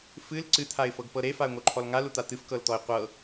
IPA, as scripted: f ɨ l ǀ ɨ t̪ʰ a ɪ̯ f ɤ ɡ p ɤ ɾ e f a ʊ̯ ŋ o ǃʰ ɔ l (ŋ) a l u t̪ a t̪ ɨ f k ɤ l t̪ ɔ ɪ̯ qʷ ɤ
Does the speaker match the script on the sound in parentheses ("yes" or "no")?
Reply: yes